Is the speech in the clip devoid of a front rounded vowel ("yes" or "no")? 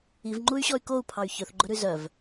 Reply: no